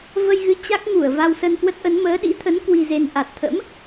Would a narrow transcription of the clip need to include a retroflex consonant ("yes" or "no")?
no